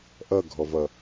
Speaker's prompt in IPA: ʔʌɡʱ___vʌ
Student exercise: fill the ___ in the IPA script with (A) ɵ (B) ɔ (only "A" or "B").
B